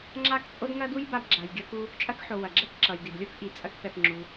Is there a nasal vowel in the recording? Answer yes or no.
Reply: no